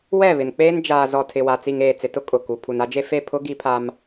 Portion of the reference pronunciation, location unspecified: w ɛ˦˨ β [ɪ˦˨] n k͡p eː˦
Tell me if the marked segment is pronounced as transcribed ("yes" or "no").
no